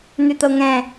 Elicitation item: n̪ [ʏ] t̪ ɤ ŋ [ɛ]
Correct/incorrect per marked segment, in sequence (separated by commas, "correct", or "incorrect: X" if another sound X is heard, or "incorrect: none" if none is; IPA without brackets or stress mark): correct, incorrect: ɛ̃